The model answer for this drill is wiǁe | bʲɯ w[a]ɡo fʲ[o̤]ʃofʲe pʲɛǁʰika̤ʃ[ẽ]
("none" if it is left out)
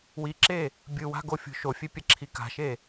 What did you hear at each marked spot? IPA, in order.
a̤, o̤, e

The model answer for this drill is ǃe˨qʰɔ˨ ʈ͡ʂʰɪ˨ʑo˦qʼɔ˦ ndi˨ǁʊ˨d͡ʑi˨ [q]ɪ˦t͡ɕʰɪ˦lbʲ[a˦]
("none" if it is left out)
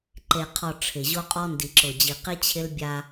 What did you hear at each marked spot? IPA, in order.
q, a˦

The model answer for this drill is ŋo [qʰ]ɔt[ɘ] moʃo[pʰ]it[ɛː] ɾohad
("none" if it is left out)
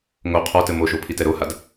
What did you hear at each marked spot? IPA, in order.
qʰ, ɘ, pʰ, ɛ

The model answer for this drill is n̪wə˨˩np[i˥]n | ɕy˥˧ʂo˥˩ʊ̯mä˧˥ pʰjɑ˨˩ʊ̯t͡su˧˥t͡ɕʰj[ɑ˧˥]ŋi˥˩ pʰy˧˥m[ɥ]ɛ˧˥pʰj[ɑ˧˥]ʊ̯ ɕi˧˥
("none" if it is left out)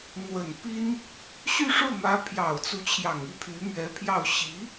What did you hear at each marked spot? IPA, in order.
i˥, ɑ˨˩, ɥ, ɑ˥˩

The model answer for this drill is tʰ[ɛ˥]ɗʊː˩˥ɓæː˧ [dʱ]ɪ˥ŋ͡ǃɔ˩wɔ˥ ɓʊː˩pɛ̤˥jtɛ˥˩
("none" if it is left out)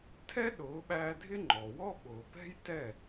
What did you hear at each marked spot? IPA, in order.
ɛ˥, dʱ

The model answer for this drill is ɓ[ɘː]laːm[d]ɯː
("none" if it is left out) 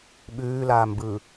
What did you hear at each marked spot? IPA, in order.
ʉː, b

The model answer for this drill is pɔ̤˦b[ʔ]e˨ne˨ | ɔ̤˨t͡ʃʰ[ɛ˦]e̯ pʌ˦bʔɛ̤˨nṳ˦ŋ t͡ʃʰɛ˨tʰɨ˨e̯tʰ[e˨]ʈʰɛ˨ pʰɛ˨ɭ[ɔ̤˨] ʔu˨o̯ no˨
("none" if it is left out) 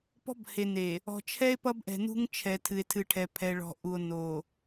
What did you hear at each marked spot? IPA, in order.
h, ɛ˦, ɨ˨, ɔ̤˨

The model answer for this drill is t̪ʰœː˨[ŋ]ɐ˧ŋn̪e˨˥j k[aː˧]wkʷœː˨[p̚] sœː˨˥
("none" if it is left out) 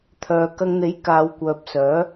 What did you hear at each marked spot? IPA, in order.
k, aː˨˧, p̚

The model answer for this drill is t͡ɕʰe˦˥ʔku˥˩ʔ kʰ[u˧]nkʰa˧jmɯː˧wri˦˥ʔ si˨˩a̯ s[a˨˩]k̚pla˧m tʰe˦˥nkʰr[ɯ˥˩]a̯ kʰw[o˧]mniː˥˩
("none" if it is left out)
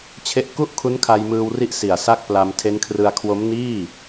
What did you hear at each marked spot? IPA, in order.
u˦˥, a˥˩, ɯ˧, o˦˥

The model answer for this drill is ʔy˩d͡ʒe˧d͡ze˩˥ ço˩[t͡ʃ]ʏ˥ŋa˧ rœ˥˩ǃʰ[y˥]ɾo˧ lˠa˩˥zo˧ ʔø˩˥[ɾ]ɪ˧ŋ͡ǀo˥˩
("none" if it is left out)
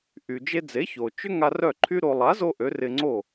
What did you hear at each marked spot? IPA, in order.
t͡ʃ, y˥, r

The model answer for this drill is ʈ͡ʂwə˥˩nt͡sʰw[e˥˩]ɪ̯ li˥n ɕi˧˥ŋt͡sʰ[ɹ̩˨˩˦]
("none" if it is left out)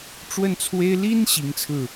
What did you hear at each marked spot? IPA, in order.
e˥, ɹ̩˥˩

